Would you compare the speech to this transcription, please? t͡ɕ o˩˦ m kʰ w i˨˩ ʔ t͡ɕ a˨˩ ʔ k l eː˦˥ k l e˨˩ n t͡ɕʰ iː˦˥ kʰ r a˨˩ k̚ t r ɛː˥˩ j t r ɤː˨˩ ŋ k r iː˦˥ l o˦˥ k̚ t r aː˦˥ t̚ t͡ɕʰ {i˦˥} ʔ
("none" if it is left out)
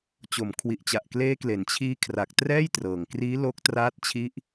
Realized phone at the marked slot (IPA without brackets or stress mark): i˦˥